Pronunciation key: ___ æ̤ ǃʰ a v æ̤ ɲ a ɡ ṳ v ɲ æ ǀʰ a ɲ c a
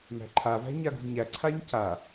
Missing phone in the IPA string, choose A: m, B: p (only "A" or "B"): A